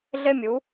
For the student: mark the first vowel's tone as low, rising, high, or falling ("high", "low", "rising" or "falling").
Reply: high